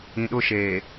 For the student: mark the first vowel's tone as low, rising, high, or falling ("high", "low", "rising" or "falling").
low